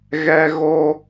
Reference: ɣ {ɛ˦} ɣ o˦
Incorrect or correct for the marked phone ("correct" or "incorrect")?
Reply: correct